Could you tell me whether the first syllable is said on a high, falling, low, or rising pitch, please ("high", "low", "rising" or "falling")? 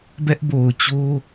high